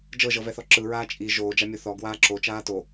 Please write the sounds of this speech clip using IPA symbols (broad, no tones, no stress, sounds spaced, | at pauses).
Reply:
d͡ʒ ɤ ʒ ɤ v ɛ θ ɔ ǁ ɯ ɹ aː t͡ʃʼ i ʒ oː d͡ʒ a mʲ o θ ɔ ɡ w aː ǁ o t͡ʃ aː t o